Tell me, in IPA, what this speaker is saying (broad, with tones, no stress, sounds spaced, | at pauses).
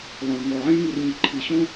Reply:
lˠ õ˩ ɭ ŋ ɔ˩ ʕ ĩ˥ ɭ ŋ i˩ r ɲ ɪ˩ ǃʰ i˩ ɕ õ˥